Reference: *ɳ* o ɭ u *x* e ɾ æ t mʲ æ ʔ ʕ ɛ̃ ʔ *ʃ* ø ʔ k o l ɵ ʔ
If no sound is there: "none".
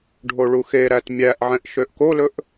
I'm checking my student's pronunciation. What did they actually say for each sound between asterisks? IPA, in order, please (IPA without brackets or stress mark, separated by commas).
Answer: ɖʱ, x, ʃ